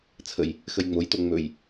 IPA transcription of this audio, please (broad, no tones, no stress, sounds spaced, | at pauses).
t͡sʰ ə j | x ə j ŋ͡m o j t o ŋ͡m ɵ j